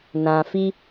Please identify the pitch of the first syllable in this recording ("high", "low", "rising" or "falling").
low